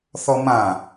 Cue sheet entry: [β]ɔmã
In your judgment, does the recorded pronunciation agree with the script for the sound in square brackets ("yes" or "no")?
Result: no